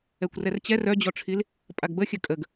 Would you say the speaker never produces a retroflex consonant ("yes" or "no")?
no